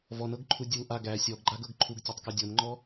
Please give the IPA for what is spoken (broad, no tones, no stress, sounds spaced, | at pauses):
v ɔ n ɤ ɡ ǃʰ u dʲ u ʔ a ɡ æ sʲ ɔ ɡ ɡ͡ǃ a ɡ ɤ ɡ ǃʰ u ɡ tʲ ɤ tˤ k a dʲ ɤ n ŋ͡ǃ ɔ